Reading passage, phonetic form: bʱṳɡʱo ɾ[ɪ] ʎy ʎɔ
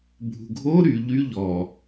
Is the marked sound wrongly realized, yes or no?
yes